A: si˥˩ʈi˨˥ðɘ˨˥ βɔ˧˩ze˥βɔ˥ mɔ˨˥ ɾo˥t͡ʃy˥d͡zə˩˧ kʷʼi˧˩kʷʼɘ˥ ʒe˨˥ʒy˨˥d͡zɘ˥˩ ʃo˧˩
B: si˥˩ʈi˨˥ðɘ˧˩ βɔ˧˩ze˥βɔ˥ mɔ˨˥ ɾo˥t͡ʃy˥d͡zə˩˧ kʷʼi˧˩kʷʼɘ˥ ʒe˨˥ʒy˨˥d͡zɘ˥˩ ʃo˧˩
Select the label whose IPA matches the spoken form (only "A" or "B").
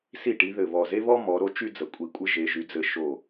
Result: B